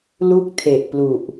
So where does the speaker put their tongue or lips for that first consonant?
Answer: tongue tip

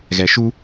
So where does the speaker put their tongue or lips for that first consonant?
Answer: velum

